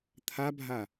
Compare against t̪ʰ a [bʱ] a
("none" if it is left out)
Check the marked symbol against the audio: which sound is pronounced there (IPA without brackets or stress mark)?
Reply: bʱ